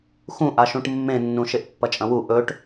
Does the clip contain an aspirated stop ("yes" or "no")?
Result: no